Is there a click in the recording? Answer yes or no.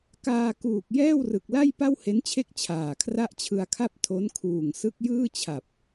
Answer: no